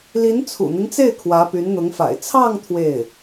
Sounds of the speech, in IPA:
l i˧˥ n t͡sʰ ṵ˨˩ n̪ i˦ ŋ t͡s e˥˩ ɪ̯ kʰ w ä˧˥ p y˧˥ n n̪ ʊ˧˥ ŋ f a̰˨˩ ɪ̯ t͡sʰ ɑ˥˧ ŋ t̪ʰ w e˥˩ ɪ̯

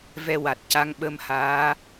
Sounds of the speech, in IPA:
v ɛ˧ w a˨˩ t̚ c a˧˥ ŋ ɓ ə˧ m h aː˧˥

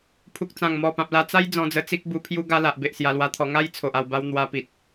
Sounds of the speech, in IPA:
pʰ u˨ k̚ t͡s ã˨˩ ŋ m ɔ˨˩ p ã˨ p̚ l a˧ t͡s a˦ j d͡z ɔ̃˧ d͡z ə˧ t͡s i˦ k̚ b u˧ pʰ j u˦ ɡ a˧ l a˨ ʔ b e˨ ʔ s j a˧ l w a˧ t̪ʰ ɔ˧ ŋ a˦ j t͡sʰ o˨ ʔ a˧ w b a˦ w n̪ w a˧ p i˨ t̚

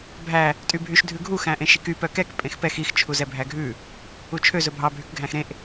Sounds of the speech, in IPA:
bʱ æ | tʼ y bʱ y ʃ dʱ ʉ ɡʱ u x æ̃ ʔ ẽ ʃ i k y p œ k ɛ k pʼ ẽ x p ɛ x i x t͡ʃʰ u z ɛ bʱ æ ɡʱ ʉ | u t͡ʃʰ ø z ɵ bʱ ɑ bʱ y k ɡʱ æ̃ x ɾ ẽ ʔ

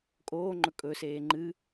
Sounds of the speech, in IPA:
kʼ oː ŋ͡ǃ ɵ kʼ ɵ s eː ŋ͡ǃ ɨ

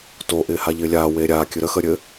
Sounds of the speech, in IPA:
t o ʔ ɪː h a ʎ ɪː lʲ aː w eː ɾʲ aː kʲ ɨ ɾ ə x ə ɾʲ ɘ

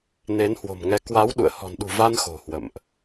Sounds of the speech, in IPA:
n e˨˦ n h w o̤˨˩ m ŋ ɛ˨˦ k w a˨˦ w ɗ ṵ˧˨ ə̯ h ɔ̤˨˩ n ɗ ṳ˨˩ v a˧ n x o̤˨˩ h w ə̰˧˨ m ʔ

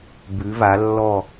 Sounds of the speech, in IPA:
b ʉ˨˦ v a˨˦ lː ɔ˦˨

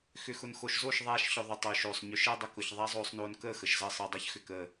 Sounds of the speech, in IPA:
x ʏ˨ x ʊ˨ n x o˨ ʃ z o˦˨ ʃ ðˤ aː˦ ʃ ç ʊ˧ ðˤ ʊ˨ tˤ ʏː˨ ʃ oː˨ sˤ ɲ ʏ˨˦ ʃ əː˦ dˤ ə˧ k ʊ˨ ç ðˤ a˦ zˤ oː˧ sˤ n oː˧ n k əː˦˨ x ə˨ ʃ z əː˧ sˤ əː˨ dˤ əː˧ ç x ʏ˨ k əː˨

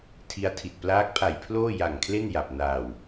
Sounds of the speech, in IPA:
tʰ i˦˥ a̯ tʰ i˨˩ t̚ p l aː˦˥ k̚ pʰ a˨˩ j pʰ l oː˥˩ j a˨˩ ŋ kʰ l e˥˩ n j a˨˩ p̚ n aː˨˩ w

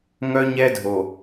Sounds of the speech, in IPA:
ŋ œ˦ ɲ ɛ˦ dʱ o˨

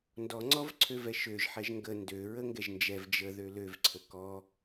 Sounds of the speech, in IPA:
n d ɔ ŋ͡ǀ ɔ v ǀʰ ø v ɛ ʃ ø ʒ ħ ɛ ʒ ŋ ɡ ə n d ø ɹ ə ŋ ɡ ɛ ʒ n d͡ʒ ɛ v d͡ʒ ə ð ø l ø v ǀʰ ə k ɔ

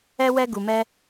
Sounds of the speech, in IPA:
ɛ˦ w ɛ˦ ɡ u˧ m ɛ˦

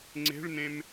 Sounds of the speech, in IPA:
ŋ͡ǀ e̤ ɭ n ẽ m

